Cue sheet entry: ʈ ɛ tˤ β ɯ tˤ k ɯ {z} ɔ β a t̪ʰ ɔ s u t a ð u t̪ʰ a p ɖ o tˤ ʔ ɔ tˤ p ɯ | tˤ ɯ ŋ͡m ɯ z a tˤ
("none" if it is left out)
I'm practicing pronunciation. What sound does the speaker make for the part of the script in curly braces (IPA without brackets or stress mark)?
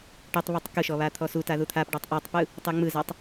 ʃ